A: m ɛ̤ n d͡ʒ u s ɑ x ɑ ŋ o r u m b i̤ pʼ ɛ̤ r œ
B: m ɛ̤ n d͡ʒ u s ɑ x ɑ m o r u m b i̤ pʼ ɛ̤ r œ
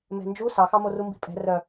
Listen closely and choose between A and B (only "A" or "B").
B